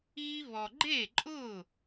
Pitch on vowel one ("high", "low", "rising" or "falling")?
high